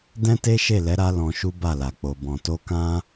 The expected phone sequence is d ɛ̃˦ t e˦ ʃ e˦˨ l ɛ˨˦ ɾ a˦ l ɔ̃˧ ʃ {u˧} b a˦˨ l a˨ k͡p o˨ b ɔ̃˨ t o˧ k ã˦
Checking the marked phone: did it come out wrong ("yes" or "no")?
yes